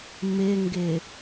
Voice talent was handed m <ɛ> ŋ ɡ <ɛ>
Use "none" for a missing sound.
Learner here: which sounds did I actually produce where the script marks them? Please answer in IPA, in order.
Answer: ɪ, ɪ

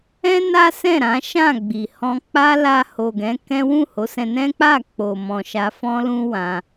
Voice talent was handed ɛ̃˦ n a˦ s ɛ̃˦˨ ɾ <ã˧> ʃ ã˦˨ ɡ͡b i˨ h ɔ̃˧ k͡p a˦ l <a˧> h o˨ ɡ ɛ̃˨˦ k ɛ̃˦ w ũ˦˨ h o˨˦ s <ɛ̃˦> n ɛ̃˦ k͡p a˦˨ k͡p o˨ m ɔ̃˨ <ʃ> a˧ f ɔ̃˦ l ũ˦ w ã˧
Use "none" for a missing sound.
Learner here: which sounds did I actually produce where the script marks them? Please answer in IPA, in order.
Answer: ã˨˦, a˧, ɛ̃˧, ʃ

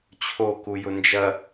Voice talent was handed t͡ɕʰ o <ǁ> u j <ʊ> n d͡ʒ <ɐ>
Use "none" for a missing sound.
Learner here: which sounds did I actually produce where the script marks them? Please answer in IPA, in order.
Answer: k, ʊ, ɐ

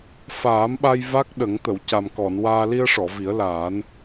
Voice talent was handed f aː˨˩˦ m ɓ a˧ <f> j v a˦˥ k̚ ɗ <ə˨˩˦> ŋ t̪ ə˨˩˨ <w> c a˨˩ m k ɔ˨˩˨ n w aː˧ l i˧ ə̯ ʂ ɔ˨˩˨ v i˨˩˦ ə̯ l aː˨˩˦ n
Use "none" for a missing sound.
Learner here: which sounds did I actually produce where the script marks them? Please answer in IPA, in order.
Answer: none, ə˨˩˦, w

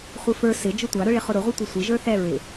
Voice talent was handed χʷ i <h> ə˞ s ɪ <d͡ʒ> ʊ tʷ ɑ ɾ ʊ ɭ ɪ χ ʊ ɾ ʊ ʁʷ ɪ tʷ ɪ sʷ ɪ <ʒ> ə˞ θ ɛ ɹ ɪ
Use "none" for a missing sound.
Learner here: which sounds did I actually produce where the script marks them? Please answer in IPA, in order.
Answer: f, d͡ʒ, ʒ

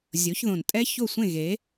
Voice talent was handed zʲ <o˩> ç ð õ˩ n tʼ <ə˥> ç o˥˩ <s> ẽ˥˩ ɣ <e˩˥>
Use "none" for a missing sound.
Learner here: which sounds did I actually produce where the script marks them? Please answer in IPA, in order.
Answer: o˩˥, ɛ˥, sʷ, e˩˥

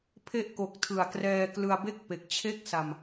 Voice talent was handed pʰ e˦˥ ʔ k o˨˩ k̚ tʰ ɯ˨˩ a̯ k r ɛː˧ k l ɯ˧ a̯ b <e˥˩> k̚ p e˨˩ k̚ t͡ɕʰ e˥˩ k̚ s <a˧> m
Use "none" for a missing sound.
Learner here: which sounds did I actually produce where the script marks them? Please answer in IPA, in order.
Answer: e˥˩, a˧

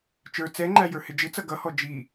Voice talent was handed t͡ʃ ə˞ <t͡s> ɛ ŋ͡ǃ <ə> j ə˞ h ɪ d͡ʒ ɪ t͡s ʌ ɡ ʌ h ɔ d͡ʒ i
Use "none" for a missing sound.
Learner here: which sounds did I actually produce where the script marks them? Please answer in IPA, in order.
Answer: t͡s, æ

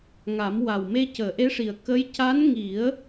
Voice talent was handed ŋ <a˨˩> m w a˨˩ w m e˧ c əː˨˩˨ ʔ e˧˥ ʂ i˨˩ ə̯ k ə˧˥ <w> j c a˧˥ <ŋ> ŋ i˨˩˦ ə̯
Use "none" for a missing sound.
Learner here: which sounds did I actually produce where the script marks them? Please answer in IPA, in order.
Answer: a˨˩˦, none, n

